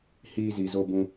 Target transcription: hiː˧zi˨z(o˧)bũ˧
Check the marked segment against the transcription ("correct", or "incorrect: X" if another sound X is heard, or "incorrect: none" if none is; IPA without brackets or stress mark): correct